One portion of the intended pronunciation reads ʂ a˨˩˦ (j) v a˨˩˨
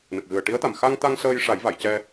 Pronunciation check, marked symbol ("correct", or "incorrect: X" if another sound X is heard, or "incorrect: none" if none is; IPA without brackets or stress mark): correct